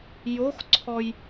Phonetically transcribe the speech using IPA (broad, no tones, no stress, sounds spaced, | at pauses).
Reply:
j o x ǀʰ ɔ j